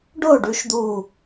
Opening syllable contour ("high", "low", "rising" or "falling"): falling